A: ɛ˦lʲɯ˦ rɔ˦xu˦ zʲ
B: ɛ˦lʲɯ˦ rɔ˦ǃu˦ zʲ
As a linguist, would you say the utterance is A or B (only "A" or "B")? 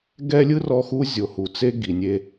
A